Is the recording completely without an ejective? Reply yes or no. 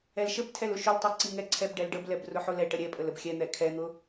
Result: no